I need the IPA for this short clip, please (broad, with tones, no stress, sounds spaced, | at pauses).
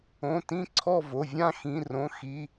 õ˩˧˩ t ĩ˥˨ ǀʰ ɔ˥˨ v o˩˧˩ vʲ ã˥˨ x ĩ˩˧˩ r õ˩˧˩ x i˩˧˩